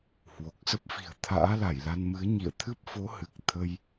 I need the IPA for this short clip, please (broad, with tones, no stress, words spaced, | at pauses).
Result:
hwo˨˩k̚sə˦˥p̚fi̤˨˩ə̯ t̪ʰa̰ː˧˥la˧˩jla˧nmɨ˨˦ə̯ ɲḭ˧˨ə̯ t̪ʰɨ˦˥p̚fo˨˦hɨ˨˩k̚ t̪ʰə˧j